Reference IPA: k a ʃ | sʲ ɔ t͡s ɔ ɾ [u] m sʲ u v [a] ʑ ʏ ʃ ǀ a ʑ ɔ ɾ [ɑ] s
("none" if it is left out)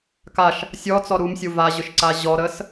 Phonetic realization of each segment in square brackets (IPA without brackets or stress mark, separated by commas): u, a, ə